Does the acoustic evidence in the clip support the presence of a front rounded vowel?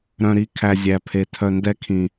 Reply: yes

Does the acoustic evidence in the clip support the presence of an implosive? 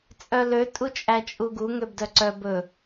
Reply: no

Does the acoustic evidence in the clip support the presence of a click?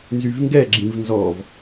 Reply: yes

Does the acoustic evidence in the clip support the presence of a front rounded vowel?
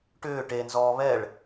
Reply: yes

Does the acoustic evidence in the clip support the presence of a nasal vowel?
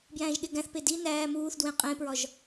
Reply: yes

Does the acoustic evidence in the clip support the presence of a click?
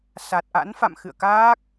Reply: no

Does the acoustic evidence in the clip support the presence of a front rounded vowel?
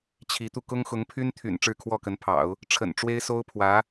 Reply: yes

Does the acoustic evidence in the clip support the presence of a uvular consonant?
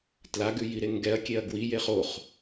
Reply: yes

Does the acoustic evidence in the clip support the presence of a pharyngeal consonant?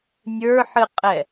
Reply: yes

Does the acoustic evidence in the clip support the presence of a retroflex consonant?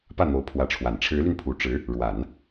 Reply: yes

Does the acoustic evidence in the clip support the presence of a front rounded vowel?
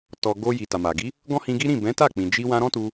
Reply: no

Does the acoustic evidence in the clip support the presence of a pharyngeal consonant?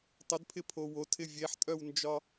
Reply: yes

